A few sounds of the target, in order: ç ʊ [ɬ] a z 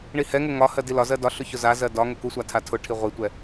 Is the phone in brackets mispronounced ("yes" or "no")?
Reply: yes